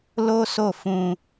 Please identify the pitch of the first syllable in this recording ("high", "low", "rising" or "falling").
high